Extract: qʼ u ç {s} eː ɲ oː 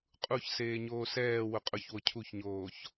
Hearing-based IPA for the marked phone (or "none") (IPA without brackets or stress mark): s